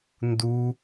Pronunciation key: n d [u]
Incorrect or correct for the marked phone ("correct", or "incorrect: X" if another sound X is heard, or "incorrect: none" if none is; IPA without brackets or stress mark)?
correct